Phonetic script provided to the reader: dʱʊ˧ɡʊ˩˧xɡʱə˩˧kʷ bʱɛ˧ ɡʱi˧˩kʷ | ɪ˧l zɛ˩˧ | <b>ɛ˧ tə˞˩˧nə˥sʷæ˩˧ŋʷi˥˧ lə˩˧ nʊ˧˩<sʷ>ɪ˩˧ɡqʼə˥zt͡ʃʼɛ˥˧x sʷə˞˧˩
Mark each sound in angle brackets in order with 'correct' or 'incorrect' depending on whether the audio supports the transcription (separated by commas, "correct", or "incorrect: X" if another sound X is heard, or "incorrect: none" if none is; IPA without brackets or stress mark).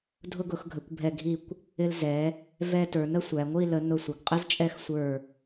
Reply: incorrect: v, correct